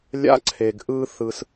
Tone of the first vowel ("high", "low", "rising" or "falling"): high